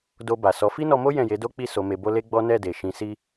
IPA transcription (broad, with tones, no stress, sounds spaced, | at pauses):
d o˧ b a˨ s ɔ˨˦ f i˦ n ɔ˧ m o˦ j ɛ̃˦˨ j e˨˦ d o˦ k͡p i˦˨ s o˧ m e˧ b o˦ l e˦ ɡ͡b ɔ˦ n ɛ˦˨ d e˨ ʃ ĩ˨˦ s i˦